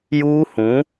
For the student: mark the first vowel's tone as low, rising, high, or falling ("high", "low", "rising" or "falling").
high